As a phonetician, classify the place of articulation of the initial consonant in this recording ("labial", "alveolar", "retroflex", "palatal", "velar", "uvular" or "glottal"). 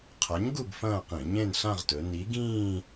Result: uvular